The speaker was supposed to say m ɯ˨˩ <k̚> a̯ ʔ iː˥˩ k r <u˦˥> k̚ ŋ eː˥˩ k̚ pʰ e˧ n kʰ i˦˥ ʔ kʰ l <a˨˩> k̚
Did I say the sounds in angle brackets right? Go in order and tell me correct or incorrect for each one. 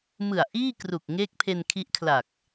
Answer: incorrect: none, incorrect: u˨˩, correct

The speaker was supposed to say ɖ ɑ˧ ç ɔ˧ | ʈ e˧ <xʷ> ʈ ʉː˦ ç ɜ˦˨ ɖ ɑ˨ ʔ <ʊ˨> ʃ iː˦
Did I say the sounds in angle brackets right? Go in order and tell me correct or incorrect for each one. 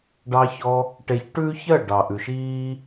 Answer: incorrect: ç, incorrect: ʉ˨

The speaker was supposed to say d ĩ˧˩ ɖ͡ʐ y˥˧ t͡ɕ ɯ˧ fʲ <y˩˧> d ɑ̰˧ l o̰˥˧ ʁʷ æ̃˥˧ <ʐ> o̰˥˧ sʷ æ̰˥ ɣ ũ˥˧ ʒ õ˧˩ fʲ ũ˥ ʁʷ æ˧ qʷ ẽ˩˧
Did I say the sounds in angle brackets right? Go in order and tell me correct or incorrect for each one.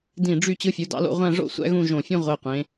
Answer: incorrect: u˩˧, correct

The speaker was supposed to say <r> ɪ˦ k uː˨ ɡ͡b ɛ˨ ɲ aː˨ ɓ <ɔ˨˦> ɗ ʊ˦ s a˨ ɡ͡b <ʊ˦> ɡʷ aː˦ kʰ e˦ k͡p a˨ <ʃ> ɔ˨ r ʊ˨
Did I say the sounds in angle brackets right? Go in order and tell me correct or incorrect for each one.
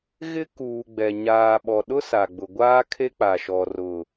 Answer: incorrect: ɣ, incorrect: ɔ˨, incorrect: ʊ˨, correct

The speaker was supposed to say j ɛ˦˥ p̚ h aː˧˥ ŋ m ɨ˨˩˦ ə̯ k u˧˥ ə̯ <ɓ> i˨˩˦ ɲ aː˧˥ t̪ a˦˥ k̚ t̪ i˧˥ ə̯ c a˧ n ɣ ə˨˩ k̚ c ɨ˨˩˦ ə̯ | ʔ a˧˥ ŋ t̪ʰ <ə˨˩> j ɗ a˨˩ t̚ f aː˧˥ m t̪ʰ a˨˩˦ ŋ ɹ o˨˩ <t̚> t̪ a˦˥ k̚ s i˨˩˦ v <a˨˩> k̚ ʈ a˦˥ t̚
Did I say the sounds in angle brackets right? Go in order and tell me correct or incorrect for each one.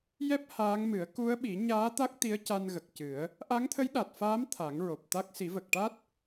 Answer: correct, incorrect: ə˧˥, incorrect: p̚, incorrect: ə˨˩

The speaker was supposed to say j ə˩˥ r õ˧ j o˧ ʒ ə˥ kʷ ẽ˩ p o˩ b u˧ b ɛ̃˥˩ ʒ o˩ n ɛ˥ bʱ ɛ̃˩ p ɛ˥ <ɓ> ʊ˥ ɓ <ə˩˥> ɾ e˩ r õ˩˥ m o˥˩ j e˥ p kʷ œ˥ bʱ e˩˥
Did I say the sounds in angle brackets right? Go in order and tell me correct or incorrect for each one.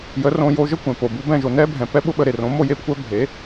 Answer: correct, incorrect: ə˧

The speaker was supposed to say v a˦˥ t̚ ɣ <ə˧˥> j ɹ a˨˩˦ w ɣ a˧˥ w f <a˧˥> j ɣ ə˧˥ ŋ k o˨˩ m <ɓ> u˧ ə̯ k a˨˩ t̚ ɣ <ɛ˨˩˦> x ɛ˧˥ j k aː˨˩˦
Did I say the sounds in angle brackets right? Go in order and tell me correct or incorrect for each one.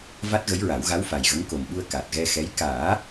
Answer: correct, incorrect: a˨˩, correct, incorrect: ɛ˧

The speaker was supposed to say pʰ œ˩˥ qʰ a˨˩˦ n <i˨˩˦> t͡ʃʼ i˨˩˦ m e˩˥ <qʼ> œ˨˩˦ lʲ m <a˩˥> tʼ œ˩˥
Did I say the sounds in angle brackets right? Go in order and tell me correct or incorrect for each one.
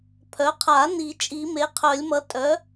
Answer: correct, incorrect: qʰ, incorrect: ʌ˩˥

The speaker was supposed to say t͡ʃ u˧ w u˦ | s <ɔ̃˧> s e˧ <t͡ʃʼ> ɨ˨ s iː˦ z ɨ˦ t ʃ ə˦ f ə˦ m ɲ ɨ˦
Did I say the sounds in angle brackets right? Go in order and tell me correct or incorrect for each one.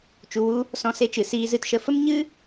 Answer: correct, incorrect: t͡ʃ

